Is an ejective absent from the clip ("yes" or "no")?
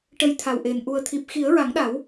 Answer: yes